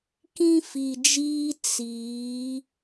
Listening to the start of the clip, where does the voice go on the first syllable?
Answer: high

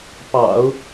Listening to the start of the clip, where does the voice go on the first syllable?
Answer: low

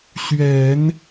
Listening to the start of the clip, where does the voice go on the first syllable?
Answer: low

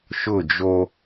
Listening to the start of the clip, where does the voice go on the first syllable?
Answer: falling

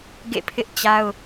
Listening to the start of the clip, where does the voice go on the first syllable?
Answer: falling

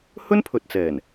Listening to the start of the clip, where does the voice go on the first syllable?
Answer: high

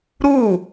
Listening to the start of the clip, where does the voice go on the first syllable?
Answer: falling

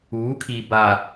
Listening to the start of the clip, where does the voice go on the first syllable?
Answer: rising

